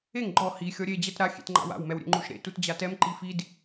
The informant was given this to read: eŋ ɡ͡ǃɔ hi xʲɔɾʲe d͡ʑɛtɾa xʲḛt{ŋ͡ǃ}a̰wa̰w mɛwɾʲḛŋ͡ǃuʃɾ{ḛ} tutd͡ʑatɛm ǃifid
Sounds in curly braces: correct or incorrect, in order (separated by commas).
correct, correct